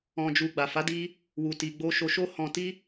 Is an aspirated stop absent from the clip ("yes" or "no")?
yes